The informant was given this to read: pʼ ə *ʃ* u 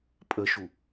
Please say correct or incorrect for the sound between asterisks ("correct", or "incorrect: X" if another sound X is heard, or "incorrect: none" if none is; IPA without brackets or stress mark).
correct